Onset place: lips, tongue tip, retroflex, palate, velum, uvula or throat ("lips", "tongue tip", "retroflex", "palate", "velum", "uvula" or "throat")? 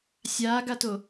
tongue tip